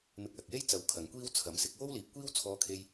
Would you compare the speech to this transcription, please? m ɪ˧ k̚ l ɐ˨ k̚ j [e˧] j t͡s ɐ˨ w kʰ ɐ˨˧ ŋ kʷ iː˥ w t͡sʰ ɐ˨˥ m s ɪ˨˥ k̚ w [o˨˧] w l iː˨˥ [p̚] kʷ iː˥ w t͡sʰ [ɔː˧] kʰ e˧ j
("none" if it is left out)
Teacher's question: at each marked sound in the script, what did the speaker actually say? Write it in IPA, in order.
e˥, o˥, p̚, ɔː˧

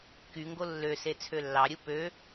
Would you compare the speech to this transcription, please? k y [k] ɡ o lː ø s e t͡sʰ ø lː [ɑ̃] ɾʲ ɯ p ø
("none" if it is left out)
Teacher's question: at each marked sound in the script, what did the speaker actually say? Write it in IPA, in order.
ŋ, ɑ

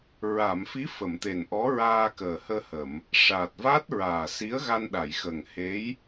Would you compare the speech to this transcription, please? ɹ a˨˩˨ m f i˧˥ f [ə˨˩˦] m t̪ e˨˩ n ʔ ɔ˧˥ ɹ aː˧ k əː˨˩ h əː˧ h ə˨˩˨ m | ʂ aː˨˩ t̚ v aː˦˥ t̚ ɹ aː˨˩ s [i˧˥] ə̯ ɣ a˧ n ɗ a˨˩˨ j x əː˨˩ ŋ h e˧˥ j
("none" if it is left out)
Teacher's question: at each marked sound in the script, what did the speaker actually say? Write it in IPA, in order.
ə˨˩˨, i˧˥

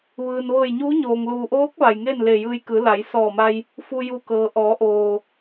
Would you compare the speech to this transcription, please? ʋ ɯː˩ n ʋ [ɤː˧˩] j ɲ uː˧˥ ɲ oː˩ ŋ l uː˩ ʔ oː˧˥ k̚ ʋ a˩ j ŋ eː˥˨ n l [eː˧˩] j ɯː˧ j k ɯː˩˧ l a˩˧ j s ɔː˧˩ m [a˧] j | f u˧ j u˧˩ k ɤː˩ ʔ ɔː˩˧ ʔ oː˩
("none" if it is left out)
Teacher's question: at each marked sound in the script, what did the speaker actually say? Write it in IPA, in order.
ɤː˧˩, eː˧˩, a˧

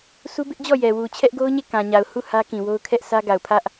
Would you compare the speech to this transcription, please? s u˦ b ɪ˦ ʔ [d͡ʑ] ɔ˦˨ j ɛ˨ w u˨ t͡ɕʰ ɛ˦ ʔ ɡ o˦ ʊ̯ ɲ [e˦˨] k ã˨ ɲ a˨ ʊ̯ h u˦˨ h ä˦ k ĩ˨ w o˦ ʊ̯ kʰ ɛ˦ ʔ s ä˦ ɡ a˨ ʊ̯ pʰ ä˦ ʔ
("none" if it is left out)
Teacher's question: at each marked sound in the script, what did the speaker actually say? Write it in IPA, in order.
d͡ʑ, e˦˨

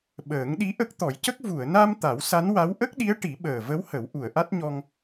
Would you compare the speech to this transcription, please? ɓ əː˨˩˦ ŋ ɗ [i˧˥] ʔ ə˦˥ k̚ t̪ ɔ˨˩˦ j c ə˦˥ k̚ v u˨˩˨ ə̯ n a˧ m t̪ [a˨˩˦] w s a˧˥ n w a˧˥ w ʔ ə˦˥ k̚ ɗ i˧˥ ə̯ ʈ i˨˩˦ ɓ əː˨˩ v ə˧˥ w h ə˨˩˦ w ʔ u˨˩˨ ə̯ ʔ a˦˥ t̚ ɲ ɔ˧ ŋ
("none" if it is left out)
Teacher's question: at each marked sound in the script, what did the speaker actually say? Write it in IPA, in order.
i˧˥, a˨˩˦

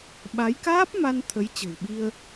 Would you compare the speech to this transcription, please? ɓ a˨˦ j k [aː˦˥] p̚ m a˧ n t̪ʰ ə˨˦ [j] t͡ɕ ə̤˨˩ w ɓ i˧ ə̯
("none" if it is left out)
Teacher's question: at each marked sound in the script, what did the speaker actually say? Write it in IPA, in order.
aː˦˥, j

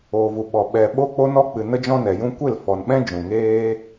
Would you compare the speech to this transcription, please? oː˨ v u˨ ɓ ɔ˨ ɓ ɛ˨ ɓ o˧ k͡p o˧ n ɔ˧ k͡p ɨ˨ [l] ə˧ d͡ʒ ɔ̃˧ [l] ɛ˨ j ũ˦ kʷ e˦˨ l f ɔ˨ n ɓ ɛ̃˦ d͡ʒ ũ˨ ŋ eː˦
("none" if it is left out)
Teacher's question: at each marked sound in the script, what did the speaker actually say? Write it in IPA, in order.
n, n

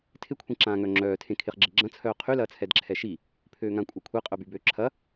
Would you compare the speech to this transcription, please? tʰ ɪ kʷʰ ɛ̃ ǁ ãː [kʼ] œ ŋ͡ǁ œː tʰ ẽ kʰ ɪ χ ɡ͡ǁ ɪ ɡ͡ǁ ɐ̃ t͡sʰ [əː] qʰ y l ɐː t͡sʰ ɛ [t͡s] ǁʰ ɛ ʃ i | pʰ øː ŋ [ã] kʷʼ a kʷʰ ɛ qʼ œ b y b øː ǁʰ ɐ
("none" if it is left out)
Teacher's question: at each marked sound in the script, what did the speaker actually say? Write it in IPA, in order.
ŋ, œː, d, ã

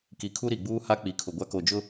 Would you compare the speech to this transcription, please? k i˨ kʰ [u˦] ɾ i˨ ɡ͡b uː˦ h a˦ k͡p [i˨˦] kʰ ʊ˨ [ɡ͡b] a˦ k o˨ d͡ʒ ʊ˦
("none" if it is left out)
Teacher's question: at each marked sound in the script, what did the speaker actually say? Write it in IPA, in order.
u˦, i˨, ɡʷ

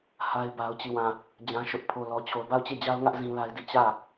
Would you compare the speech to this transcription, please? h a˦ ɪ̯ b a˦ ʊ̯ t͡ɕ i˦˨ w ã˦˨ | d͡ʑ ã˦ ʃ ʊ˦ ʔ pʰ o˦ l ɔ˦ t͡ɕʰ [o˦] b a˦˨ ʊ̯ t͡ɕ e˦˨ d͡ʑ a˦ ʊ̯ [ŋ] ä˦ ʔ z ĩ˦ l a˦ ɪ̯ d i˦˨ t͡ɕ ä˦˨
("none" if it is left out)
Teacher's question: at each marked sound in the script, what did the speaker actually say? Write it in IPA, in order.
o˦, ŋ

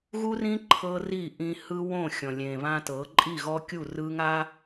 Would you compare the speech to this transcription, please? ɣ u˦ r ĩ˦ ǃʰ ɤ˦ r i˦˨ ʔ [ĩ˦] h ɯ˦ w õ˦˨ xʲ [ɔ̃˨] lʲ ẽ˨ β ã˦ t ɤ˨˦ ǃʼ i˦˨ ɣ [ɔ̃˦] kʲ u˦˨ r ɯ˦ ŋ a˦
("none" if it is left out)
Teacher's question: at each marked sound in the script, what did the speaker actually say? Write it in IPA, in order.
ĩ˦, ɔ̃˨, ɔ˦

